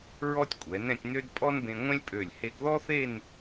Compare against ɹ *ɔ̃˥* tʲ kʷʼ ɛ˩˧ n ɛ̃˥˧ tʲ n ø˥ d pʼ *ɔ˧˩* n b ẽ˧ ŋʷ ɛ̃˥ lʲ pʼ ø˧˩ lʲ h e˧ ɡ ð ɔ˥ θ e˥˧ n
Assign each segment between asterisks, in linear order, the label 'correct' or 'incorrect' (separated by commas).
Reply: incorrect, incorrect